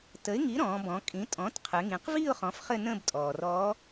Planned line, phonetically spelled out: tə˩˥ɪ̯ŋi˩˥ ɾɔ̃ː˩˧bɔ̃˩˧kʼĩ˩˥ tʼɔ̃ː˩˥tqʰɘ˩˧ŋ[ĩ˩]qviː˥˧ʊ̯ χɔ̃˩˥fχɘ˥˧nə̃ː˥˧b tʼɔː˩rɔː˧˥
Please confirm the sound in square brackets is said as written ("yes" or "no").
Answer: no